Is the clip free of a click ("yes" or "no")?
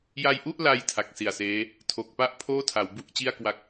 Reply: yes